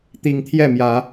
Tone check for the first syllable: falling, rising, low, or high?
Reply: rising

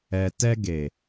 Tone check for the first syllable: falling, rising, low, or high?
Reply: low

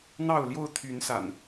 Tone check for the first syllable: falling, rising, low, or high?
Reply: falling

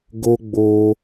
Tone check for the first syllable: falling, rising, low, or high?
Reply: high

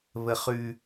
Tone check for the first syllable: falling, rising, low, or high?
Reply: high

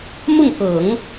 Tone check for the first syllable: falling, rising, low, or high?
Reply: falling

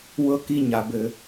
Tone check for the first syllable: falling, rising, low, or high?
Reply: falling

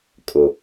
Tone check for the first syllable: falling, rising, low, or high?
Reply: low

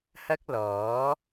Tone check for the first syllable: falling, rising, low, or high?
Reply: high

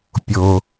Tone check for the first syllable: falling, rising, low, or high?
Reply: low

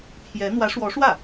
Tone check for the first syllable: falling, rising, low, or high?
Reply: rising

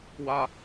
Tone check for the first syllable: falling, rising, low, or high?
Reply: high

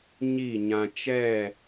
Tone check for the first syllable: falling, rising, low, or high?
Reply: falling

